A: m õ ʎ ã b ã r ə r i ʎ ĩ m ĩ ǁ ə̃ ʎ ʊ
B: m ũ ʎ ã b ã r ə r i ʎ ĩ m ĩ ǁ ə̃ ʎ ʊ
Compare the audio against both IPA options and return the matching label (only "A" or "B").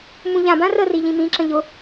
B